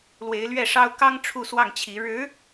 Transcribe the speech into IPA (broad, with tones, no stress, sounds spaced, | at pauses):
l w e˧˥ ɪ̯ l ɥ ɛ˥˩ ʂ ɑ˥ ʊ̯ k ɑ˥ ŋ ʈ͡ʂʰ u˥˧ s w ɑ˥˩ ŋ t͡ɕʰ i˧˥ ɻ ɻ̩˧˥